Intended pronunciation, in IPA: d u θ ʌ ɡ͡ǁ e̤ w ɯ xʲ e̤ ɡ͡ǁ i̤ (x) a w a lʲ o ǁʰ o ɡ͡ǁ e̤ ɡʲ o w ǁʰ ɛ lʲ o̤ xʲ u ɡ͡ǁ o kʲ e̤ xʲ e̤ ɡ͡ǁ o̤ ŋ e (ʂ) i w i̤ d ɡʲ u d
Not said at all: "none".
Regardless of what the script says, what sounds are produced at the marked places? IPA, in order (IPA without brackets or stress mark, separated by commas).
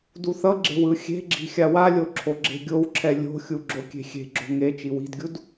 xʲ, t͡ʃ